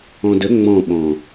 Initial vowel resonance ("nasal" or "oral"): nasal